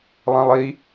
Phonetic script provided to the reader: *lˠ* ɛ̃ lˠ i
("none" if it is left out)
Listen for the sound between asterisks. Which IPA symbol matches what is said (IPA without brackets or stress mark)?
lˠ